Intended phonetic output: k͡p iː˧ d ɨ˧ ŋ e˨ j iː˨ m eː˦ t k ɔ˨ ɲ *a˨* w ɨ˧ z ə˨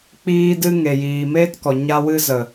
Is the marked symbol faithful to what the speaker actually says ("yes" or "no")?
no